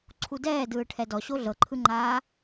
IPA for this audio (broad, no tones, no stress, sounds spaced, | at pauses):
ǀʰ u d ɛː d ɯː ʈʰ ɛ d ɔ ɕ o ɮ ɤ ǃʰ ɯ ŋ͡ǃ aː